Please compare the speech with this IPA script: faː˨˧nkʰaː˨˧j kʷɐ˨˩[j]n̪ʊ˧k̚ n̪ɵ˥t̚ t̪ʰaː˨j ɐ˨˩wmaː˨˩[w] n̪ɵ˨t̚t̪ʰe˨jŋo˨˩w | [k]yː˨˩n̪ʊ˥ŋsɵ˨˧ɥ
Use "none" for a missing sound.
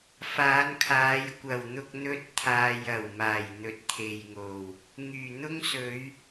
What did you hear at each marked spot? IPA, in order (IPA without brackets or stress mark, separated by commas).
w, j, ŋ